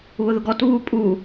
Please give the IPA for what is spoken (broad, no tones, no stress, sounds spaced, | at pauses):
β ʊ ð ʊ ɡ ɔ t β u pʼ u